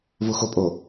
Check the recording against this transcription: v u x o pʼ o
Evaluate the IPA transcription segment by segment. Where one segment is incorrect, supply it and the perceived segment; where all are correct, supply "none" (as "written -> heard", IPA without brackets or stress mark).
none